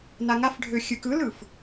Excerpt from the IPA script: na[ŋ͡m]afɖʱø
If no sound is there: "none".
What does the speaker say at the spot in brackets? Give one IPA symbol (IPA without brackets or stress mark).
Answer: ŋ